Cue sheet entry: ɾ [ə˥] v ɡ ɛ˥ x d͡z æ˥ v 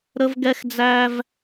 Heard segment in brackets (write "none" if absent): ə˥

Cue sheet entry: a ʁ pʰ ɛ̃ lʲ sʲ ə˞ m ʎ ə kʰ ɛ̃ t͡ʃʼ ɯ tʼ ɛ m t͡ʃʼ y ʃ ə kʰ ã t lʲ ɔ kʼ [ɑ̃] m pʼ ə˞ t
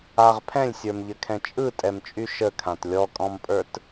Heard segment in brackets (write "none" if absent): ɔ̃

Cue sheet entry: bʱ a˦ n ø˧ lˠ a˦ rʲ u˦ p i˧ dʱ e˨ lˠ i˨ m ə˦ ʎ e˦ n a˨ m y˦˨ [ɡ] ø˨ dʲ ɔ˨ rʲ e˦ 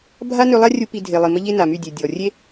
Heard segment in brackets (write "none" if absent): dʲ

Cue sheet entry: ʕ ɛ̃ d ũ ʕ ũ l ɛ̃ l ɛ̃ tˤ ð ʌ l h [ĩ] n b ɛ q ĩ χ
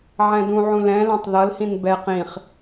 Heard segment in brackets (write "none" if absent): ĩ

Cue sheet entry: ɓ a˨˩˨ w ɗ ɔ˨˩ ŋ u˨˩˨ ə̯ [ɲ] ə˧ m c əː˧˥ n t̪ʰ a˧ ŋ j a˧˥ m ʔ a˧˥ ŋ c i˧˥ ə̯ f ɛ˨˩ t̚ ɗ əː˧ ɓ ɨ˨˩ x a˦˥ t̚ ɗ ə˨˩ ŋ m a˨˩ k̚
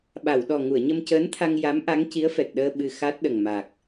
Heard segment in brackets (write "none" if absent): ɲ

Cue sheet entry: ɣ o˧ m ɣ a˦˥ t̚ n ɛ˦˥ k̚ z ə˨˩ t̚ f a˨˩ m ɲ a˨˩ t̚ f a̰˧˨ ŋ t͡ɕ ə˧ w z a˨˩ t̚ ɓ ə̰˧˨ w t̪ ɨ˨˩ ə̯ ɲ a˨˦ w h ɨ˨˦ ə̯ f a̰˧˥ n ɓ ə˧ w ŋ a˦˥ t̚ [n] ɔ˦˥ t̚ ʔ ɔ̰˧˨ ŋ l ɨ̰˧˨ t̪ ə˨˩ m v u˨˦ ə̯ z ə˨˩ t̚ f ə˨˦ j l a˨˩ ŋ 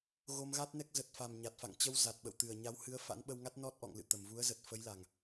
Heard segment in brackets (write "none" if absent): n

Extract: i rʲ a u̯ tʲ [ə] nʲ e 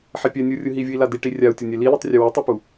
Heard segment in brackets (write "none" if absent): ʌ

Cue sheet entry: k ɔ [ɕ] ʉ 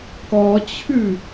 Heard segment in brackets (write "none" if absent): t͡ɕʰ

